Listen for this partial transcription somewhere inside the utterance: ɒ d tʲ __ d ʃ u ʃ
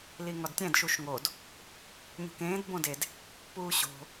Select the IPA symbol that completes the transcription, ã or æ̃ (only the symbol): æ̃